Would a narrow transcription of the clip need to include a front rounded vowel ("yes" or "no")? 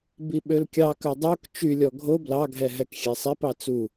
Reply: yes